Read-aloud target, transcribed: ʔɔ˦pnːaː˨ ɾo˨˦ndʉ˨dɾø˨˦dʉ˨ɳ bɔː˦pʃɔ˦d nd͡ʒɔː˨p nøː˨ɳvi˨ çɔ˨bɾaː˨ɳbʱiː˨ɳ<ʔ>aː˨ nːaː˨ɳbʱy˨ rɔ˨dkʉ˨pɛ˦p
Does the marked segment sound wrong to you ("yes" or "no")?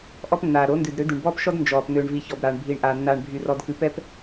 no